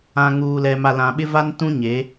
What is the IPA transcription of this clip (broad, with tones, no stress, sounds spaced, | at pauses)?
ã˨ ŋ uː˨ l ɛ˨ m a˨ l ã˨ ɓ ɪ˦ v a˦ n t ũ˦ ɲ e˨˦